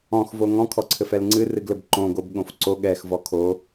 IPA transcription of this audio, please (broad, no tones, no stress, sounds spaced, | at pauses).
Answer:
ɔ̃ x v o ŋ ɔ̃ kʰ ɔ ǀʰ ɘ f ɛ l ŋ͡ǀ ɨ r ɨ ɡ l ɘ b ǃ õ ɡ o b ɠ õ f ǀ o ɠ ɛ x v ɔ kʰ o